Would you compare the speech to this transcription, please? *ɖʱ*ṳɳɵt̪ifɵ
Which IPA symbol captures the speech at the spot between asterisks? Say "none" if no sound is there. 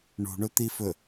ɳ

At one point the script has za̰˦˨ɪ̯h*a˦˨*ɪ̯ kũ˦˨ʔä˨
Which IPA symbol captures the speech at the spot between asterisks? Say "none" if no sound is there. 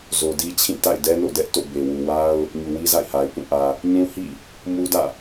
a˨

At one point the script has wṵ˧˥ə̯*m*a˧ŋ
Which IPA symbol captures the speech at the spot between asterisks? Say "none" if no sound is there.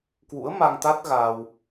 m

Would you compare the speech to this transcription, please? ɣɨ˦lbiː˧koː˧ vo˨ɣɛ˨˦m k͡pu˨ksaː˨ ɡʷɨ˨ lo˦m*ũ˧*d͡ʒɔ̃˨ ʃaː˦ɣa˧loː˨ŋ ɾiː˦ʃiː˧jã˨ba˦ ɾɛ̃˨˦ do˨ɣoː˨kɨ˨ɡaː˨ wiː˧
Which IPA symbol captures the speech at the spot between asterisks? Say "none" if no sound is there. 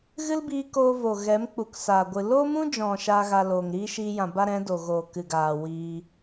ũ˦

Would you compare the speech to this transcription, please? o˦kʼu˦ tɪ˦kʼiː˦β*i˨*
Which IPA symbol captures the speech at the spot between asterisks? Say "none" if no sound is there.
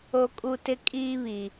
i˨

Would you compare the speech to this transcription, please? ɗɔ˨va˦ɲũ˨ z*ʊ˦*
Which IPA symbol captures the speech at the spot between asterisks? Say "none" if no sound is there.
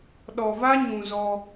ɔ˦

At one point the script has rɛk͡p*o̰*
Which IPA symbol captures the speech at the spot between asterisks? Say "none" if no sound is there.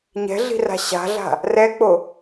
o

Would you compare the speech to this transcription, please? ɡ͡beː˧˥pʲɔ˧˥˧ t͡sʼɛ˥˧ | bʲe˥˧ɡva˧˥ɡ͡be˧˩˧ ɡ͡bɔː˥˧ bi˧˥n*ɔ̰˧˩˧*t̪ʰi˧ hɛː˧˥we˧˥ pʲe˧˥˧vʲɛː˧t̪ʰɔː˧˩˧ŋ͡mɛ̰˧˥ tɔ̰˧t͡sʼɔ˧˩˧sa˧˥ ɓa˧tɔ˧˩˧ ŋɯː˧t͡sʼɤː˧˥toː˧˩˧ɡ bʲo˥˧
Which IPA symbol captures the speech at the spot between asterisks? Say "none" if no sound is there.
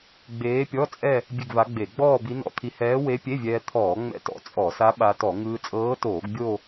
ɔ̰˧˥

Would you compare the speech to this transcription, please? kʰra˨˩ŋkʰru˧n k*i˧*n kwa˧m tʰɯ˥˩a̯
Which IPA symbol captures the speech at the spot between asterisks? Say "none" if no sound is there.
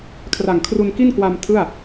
i˥˩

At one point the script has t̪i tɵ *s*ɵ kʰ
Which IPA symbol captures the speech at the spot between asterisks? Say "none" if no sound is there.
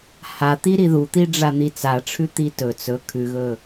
t͡s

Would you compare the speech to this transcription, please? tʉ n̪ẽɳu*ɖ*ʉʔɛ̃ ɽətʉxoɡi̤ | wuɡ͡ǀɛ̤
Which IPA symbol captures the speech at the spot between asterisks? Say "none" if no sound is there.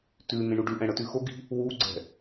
ɖ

